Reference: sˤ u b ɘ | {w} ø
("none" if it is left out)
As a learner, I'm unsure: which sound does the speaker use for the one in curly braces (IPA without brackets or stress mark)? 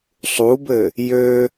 j